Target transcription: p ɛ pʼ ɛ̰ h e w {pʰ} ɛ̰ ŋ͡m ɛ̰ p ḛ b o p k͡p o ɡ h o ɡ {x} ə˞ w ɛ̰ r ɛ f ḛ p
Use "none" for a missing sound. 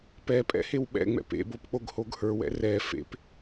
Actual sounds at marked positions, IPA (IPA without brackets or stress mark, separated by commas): ɓ, h